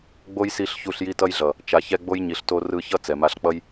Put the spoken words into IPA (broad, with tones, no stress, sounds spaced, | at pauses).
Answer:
ɡ͡b o˦ j s i˦˨ ɬ ç u˦˨ ɬ j i˦ t ʌ˦ j ɮ ʌ˨ | t͡ʃ a˨ ç ɛ˧ ɡ͡b o˦ j ɲ i˨ ɬ t o˦ r ɯ˧ ç ʌ˦ t͡s ɛ˨ m a˧ ɬ k͡p ʌ˦ j